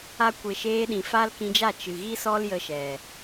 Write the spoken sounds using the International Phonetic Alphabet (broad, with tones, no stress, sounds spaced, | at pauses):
a˧ kʷ e˨ ʃ eː˧ ɗ ĩ˨ f a˦ l k ĩ˧ d͡ʒ a˦˨ t͡ʃ ɨ˨ ɣ i˦ s ɔ˦ l j ə˧ ʃ ɛ˨